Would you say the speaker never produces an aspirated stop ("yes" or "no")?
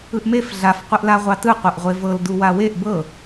yes